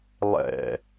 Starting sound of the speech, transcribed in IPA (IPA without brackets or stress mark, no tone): lˠ